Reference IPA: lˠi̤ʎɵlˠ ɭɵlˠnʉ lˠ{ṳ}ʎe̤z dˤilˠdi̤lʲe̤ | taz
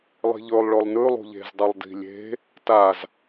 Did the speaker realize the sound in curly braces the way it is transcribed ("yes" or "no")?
yes